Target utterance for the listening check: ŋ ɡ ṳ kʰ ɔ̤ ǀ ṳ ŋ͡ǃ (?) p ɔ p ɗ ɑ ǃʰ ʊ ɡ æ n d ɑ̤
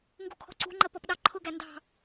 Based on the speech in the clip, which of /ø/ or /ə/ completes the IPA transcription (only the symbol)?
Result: ə